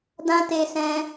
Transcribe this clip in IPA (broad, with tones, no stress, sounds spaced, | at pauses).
d ã˦ t e˧ s ɛ̃˧